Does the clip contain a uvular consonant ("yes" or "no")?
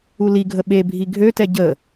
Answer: no